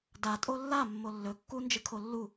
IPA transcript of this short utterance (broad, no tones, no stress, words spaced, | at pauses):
da tʼolːa mːolːɵ kːu nd͡ʒɨkʰolːu